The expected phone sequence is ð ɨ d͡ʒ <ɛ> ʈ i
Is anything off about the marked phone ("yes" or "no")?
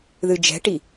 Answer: yes